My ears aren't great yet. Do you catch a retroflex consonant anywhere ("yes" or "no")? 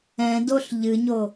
no